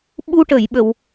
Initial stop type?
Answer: implosive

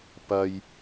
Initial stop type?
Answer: plain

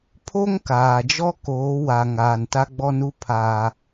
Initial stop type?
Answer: aspirated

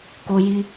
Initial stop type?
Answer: plain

